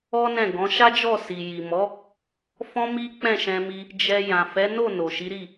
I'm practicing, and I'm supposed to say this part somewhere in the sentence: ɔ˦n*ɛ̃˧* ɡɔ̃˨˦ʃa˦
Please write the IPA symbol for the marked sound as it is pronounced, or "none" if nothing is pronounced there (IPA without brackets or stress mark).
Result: ɛ̃˦˨